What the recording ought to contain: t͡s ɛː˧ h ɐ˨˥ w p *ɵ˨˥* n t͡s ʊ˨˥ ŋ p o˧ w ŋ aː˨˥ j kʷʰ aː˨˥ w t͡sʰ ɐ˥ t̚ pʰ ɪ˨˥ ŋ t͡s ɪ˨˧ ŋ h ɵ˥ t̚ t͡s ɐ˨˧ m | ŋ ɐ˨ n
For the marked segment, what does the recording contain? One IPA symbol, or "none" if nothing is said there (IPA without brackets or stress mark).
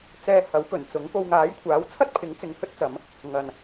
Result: ɵ˨˩